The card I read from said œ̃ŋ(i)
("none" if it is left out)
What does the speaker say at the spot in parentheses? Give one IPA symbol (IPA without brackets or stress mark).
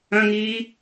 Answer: iː